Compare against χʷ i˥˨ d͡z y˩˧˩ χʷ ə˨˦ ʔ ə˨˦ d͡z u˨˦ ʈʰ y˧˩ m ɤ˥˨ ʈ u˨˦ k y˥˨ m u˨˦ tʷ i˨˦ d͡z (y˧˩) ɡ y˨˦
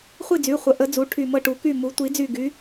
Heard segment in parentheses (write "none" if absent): y˧˩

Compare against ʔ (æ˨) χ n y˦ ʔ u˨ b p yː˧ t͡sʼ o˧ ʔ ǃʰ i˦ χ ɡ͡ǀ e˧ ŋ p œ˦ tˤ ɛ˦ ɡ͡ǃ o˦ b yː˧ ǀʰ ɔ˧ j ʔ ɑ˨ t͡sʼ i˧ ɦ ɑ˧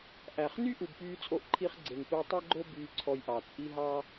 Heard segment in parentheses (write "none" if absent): æ˨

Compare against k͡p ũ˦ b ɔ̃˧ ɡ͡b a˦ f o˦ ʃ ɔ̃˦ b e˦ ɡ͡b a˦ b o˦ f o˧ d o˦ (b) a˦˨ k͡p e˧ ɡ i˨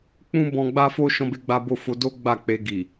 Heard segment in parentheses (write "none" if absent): ɡ͡b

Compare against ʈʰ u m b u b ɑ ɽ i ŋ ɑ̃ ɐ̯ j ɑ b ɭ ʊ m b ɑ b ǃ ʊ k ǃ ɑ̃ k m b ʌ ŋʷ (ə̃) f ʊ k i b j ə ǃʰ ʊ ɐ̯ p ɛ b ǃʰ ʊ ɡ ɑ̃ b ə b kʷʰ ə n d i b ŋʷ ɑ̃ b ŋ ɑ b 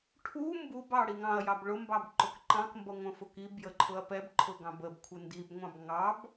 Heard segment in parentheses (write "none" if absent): ə̃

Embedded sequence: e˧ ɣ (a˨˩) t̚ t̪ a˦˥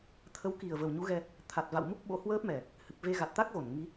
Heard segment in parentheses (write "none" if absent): a˨˩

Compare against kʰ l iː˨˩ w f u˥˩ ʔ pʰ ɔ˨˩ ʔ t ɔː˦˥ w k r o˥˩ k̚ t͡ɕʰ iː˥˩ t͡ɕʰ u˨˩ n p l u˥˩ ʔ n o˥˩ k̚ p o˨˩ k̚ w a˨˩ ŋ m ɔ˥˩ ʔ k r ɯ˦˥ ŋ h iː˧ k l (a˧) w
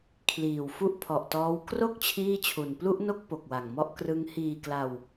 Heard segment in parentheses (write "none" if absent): a˧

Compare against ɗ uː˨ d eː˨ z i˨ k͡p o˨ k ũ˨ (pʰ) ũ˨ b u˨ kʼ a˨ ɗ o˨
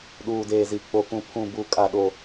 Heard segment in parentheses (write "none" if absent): pʰ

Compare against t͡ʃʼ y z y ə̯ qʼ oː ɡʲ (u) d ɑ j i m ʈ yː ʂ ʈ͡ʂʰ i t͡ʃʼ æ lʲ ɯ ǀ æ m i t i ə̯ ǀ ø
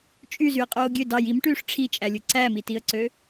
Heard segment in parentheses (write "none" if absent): ø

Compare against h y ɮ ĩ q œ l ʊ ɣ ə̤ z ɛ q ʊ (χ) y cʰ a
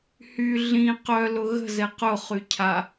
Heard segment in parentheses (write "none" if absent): χ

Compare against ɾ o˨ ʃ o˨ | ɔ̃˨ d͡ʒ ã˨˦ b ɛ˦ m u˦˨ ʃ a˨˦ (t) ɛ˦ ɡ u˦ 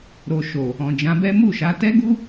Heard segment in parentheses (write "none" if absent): t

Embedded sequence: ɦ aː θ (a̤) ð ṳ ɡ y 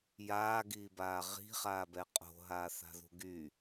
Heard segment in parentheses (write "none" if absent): a̤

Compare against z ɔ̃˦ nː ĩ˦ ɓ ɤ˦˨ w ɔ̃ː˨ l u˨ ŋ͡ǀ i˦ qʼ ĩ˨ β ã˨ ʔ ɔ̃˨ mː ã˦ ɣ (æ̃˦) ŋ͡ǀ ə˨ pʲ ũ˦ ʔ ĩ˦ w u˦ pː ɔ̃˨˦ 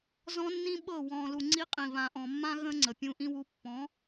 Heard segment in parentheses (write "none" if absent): ə̃˦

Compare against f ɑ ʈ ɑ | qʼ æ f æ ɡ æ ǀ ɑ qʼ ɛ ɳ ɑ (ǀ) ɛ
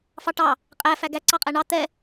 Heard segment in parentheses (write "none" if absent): t̪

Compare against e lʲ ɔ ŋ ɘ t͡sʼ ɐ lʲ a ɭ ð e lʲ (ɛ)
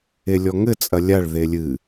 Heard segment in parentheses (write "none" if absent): ɨ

